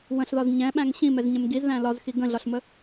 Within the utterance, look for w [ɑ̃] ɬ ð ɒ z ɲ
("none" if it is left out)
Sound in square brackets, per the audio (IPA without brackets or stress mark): ə̃